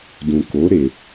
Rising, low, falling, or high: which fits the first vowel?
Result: low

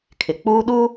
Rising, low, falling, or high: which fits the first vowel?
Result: low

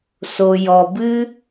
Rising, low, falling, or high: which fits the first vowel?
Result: low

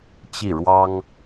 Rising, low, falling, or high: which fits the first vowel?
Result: falling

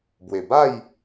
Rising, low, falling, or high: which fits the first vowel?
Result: low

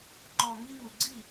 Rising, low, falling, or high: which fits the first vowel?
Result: low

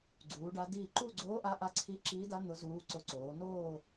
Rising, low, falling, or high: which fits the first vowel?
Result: rising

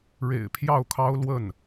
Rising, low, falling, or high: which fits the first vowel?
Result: low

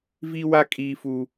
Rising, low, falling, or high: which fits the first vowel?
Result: high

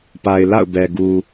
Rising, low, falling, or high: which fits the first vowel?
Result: low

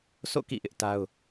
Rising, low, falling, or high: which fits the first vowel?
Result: falling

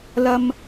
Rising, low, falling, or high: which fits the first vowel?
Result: high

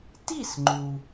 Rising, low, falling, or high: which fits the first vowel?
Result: falling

